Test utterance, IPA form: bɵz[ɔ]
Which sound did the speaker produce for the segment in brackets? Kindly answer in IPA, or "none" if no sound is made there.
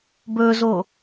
o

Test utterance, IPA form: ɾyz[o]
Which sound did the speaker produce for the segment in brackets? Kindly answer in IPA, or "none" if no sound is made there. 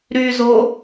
o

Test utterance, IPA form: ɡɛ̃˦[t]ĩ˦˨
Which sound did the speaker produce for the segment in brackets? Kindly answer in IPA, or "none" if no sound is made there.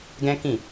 k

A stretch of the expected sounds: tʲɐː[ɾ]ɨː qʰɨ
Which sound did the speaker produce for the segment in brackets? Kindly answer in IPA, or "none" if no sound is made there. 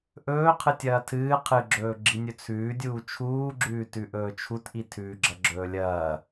tʰ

